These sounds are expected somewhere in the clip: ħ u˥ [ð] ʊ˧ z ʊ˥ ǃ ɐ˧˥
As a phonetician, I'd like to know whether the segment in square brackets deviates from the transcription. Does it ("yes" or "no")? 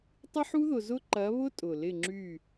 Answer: no